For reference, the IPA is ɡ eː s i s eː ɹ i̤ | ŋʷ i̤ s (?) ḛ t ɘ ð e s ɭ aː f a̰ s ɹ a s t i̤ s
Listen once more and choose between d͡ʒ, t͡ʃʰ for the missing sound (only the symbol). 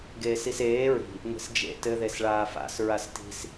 d͡ʒ